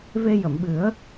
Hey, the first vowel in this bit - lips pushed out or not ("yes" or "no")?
no